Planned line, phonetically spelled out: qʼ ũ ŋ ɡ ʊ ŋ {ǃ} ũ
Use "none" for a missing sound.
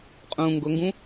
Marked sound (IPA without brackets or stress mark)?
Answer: ɡ